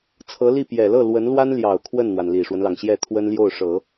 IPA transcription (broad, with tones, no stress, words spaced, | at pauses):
t͡sʰɤ˧˥li˥˩ pjɛ˨˩lɤ˥˩ lwə˧˥nlwa˥nljɑ˨˩ʊ̯ kʰwə˥˩nn̪wa˩n li˨˩ʂwə˦nlɑ˩ŋɕjɛ˥˩ t̪ʰwə˥nljo˥˩ʊ̯ʂɤ˨˩˦